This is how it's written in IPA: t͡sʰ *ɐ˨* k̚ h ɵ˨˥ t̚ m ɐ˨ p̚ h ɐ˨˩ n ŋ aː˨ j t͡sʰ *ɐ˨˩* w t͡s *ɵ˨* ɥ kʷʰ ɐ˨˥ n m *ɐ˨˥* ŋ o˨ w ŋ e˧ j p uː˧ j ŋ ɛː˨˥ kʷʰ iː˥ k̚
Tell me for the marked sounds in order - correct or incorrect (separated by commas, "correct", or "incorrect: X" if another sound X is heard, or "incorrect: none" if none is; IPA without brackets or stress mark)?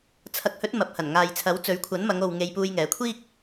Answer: incorrect: ɐ˨˥, incorrect: ɐ˨˥, incorrect: ɵ˨˥, incorrect: ɐ˨˧